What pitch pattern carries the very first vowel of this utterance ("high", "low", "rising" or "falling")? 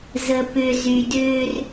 low